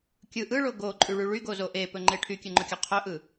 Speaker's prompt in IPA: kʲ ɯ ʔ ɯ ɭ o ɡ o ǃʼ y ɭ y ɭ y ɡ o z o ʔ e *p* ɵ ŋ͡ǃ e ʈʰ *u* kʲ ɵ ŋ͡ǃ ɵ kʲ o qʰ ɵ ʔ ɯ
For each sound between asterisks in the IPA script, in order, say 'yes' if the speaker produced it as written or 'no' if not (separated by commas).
yes, no